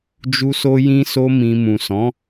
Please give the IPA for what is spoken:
d͡ʒ u˦ s o˦ j ĩ˦ s o˦ m ĩ˧ m ũ˨ s ɔ̃˨˦

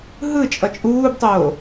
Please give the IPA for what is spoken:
ɦ ɯ t͡ʃʼ ʌ t͡ʃʼ uː b tˤ oː

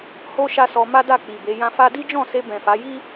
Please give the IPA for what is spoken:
h o˦ ʃ a˦ s ɔ˧ m a˦ d a˦˨ k͡p i˨ b e˨˦ j ã˧ f a˦ d i˦ d͡ʒ ɔ̃˦˨ s e˧ b ɛ̃˨ f a˨˦ j i˦

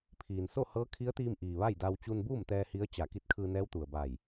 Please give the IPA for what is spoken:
pʰ iː˩ n s o˥˨ h ɤː˧˥ kʰ i˧˥ ə̯ t̪ iː˧ m ʔ iː˩ ʋ a˥˨ j d a˧ w t͡ɕ u˧ n b uː˥˨ m t̪ ɛː˧ h i˧˥ ə̯ t͡ɕ a˧˩ k i˧˥ t̚ kʰ ɯː˧ n ɛː˧˥ w t̪ u˩ ə̯ b a˧˩ j

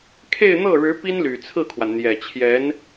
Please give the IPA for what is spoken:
kʰ e˥˧ ɪ̯ n̪ ɤ˥˩ ɻ ɻ̩˧˥ p i˥ n l y˨˩ t͡sʰ ɹ̩˥˩ kʰ w a˩ n n̪ j ɛ˨˩ t͡ɕʰ j ɛ˧˥ n

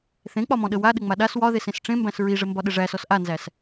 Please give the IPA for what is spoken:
θ ẽ k͡p ɒ m ɔ̃ ɗ ə w a ɗ ɘ ŋ͡m a ɗ a s w ɒ ð e s ẽ s ʈ͡ʂ ẽ m b æ̃ s ɹ i ʐ ɘ m b ɒ ɗ ɘ ʐ æ s ɔ s ʔ a n z æ s

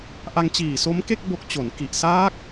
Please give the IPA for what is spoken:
ʔ a˧ ŋ t͡ɕ iː˨˩ s o˦˥ m k e˥˩ k̚ b o˦˥ k̚ t͡ɕ o˩˦ n k i˨˩ ʔ s aː˦˥ k̚

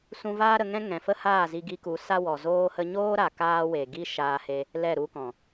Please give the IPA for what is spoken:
s ũ˧ v aː˦ ɾ ə˧ ŋ ɛ̃˦ ŋ ɛ̃˨ f ə˦ h aː˦˨ z i˧ ɡ i˧ k u˨˦ s a˦ w ɔ˨ z oː˦ h ə˦ ɲ oː˦ ɾ a˨ k aː˦ w e˨ ɡ i˦ ʃ aː˧ h e˧ | l ɛ˦˨ ɾ u˦ k ɔ̃˨

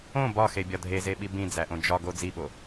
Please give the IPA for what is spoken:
õ b ɒ x e bʲ ɒ dʱ e z e ɓ i b ĩ d͡z æ ʔ õ d͡ʒ ɒ ɡ o d͡z i ɓ o

